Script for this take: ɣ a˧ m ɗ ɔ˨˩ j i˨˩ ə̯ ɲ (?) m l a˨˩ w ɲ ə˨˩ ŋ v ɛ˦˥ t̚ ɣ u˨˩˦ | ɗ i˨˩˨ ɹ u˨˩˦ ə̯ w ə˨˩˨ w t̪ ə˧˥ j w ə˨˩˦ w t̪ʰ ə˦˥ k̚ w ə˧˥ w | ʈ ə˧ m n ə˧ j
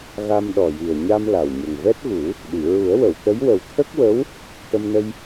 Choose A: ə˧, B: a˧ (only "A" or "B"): B